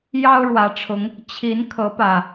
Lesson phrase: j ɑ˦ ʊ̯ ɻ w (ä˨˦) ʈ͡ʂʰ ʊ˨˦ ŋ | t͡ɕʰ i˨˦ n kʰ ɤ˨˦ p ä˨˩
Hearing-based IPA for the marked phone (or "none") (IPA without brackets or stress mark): ä˨˦